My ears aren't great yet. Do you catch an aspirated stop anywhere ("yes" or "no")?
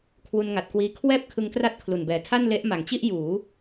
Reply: yes